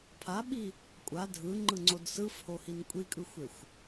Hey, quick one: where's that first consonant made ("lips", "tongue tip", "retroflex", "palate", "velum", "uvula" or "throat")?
lips